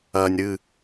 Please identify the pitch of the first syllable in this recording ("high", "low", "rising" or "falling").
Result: low